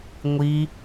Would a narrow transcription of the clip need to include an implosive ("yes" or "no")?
no